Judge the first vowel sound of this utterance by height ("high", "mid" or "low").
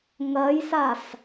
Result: low